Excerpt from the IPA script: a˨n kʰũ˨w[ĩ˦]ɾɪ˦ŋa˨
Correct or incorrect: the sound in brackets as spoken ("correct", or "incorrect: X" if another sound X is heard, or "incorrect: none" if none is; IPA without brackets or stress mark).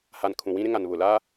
correct